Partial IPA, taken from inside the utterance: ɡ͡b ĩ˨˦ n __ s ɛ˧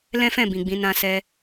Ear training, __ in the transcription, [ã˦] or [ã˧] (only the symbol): ã˧